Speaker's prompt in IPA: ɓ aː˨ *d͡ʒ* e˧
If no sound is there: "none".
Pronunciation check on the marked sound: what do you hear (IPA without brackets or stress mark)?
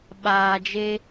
d͡ʒ